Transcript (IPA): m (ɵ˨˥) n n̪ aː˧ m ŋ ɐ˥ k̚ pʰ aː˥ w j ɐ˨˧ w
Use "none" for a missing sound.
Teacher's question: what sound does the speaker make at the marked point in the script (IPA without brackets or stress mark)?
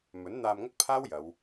ɵ˨˥